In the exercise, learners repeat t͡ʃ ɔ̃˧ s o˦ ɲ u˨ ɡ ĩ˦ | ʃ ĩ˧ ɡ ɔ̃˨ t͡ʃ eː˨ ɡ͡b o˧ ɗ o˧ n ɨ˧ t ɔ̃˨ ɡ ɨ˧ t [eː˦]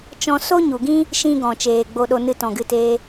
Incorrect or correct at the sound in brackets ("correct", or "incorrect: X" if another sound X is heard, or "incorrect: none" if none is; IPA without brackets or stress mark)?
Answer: correct